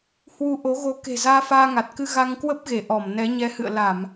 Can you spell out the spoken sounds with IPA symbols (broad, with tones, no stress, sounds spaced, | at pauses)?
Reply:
h w u˧ ʔ o˨˦ ɣ o˧ k e̤˨˩ z aː˧ f aː˧ ŋ a˨˩ t̚ k ɨ˧ ɣ a˧ ŋ k w ə˦˥ p̚ ɣ e˧˩ ʔ ɔ˧˩ m n ɛ˨˦ ɲ ɛ˨˦ h ɨ̰˧˨ ə̯ l a˧˩˨ m